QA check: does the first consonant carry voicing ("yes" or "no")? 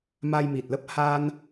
yes